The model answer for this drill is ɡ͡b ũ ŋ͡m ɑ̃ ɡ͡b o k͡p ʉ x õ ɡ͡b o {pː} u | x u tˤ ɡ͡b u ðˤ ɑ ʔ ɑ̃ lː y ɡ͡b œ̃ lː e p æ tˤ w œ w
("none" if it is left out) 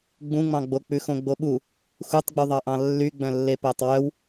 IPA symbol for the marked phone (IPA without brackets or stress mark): ɓ